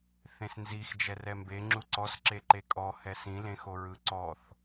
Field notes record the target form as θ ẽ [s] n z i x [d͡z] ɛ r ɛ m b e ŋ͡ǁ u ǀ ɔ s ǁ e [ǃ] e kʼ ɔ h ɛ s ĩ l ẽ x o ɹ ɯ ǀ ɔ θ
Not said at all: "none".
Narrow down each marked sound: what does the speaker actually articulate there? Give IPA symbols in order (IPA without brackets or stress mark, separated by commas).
s, d͡ʒ, ǃ